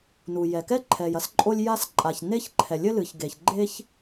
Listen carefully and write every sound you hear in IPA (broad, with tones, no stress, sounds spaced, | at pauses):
n u˩ j ɛ˩ k ɛ˥ ǃʰ ɛ˩ j ɐ˥ s ǃʼ o˥ lʲ j a˥ s ǃʼ a˩ ç n e˥ ç ǃʰ ɛ˩ lʲ ɘ˥ l ɨ˩ ç ɡ e˩ ç ɡ͡ǃ e˥ ç